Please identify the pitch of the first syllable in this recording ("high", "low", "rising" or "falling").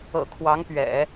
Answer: low